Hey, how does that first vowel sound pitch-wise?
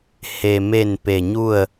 low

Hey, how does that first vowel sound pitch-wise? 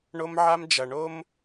high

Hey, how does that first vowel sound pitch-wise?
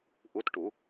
rising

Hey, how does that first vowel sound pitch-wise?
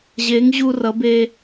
rising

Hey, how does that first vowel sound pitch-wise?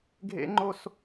high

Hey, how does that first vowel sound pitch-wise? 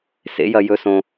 rising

